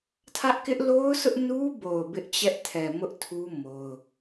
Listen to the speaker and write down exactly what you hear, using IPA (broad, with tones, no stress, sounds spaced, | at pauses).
tʰ ä˦ ʔ k ɪ˦ ʔ l o˦ ʊ̯ s ʊ˦ ʔ n u˦ b o˨ ʊ̯ b ɪ˦ ʔ t͡ɕ ɛ˦ ʔ tʰ ɛ˨ m ʊ˦ ʔ tʰ u˦ m o˦ ʊ̯